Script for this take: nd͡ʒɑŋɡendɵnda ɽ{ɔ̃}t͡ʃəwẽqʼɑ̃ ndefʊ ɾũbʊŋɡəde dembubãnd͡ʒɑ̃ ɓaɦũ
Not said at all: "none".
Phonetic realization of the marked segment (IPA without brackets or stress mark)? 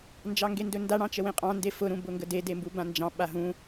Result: ɑ̃